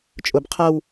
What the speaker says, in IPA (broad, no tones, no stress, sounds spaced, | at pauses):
t͡ʃʼ ʊ b qʰ ɐ w